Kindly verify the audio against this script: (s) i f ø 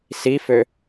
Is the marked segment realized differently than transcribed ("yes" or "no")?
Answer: no